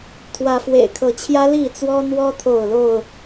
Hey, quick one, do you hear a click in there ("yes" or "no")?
no